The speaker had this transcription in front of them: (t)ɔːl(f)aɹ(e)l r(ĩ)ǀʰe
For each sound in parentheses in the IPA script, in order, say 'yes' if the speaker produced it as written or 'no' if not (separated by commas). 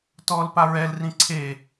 yes, no, no, yes